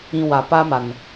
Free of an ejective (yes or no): yes